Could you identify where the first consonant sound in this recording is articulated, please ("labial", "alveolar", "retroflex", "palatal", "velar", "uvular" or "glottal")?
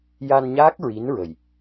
palatal